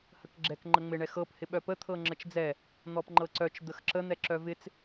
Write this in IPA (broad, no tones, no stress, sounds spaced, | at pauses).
h ə k ɡ͡ǁ ɛ k ŋ͡ǃ ə ŋ͡m ɪ ɳ ɛ x ɤ p h ɪ ɓ œ p ə t̪ʰ ɤ ŋ͡ǁ ə t͡ʃ d͡z ɛ | n̪ ɔ p ŋ͡ǃ ɤ ǀ œ t͡ʃ d̪ ə x ǁ ə n̪ ɛ ǁ œ v ɪ t͡s